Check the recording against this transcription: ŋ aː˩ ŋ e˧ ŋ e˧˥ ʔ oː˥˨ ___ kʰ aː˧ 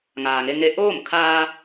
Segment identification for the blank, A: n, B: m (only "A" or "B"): B